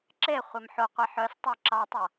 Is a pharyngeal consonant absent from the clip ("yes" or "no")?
no